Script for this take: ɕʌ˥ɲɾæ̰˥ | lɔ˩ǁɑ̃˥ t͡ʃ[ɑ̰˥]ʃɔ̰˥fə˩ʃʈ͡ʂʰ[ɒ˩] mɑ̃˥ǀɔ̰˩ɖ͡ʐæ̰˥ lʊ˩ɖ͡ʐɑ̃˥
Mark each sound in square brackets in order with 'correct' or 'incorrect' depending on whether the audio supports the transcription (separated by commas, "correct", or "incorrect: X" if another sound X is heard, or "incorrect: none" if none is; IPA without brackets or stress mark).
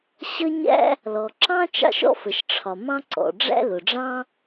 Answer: correct, correct